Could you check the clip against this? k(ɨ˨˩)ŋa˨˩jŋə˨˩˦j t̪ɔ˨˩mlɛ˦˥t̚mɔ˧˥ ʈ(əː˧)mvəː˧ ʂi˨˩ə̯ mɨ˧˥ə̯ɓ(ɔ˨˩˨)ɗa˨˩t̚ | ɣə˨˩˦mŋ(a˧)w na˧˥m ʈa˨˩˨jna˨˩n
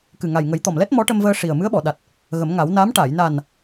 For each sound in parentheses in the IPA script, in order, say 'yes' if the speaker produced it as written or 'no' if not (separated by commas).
yes, no, yes, no